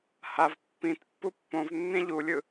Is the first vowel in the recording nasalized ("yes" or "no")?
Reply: no